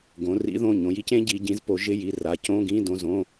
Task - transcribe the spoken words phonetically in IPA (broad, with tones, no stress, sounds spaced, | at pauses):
ɡ õ˩˧ r ḭ˨˥ ð õ˩˧˩ ɲ õ˩˧ j i˨˥ c ẽ˨˥ ɟ i˩˧ ɟ ĩ˨˥ z p o˩˧ ʒ ɪ˧˥˧ j i˩˧˩ r a˩˧ c õ˧˥˧ ɡ ĩ˧˥˧ d õ˩˧˩ z õ˩˧˩